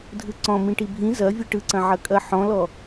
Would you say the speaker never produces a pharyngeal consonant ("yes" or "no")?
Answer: no